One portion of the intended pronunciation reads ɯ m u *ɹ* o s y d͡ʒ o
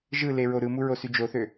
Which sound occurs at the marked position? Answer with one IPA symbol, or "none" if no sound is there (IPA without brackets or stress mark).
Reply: ɹ